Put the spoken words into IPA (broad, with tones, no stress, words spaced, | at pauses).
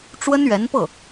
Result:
ʈ͡ʂwə˥nɥɛ˧˥npɤ˥˩